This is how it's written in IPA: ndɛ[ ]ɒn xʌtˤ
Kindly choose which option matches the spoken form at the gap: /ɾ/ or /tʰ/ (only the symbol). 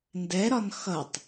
ɾ